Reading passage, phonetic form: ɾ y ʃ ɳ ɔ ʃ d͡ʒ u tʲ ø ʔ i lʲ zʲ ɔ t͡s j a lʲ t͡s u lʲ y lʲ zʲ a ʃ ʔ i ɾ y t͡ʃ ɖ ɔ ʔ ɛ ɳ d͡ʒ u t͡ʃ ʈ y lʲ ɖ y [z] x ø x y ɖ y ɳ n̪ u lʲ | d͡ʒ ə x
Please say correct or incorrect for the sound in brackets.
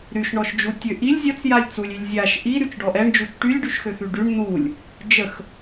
incorrect